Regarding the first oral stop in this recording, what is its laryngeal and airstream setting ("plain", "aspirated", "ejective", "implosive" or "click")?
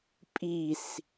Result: ejective